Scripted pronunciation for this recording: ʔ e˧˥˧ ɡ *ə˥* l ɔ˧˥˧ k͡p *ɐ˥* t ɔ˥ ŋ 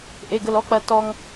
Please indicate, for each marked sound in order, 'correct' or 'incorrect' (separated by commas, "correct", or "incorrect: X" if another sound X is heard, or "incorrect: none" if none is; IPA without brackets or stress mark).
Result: correct, correct